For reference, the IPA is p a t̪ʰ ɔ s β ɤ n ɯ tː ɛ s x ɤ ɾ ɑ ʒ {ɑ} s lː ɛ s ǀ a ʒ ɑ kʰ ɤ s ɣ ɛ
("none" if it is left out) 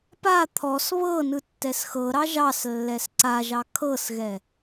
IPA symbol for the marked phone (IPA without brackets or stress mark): ɑ